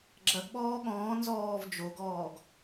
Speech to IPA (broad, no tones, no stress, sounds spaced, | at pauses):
ɡ͡ǁ ɐ ɡ ɓ ɔː ɠ ɔ̃ː n z ɔː v d͡ʒ o ɡ ɔː ɡ